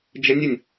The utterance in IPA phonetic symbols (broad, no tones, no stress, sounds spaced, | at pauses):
d͡ʒ ə nʲ ə nʲ